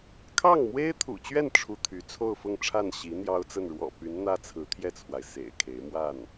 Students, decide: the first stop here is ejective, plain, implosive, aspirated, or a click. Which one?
aspirated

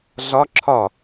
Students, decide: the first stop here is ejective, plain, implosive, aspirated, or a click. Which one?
click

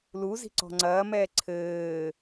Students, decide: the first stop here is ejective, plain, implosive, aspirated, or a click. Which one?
click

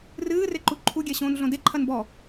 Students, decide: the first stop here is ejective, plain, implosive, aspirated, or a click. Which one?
click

